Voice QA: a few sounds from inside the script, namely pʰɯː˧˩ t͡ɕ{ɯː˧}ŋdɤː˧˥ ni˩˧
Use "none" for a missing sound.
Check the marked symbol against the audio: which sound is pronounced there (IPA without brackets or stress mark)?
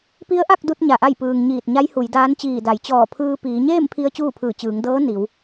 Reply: ɯː˩˧